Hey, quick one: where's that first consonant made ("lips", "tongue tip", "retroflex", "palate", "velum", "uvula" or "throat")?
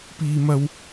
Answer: lips